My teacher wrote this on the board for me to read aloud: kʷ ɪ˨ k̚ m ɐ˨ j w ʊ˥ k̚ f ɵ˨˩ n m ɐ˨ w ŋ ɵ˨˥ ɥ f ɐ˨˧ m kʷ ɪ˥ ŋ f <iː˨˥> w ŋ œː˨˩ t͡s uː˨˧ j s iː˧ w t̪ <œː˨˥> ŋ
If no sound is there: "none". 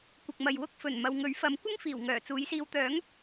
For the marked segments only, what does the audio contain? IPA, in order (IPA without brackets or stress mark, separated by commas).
iː˨˩, œː˨˥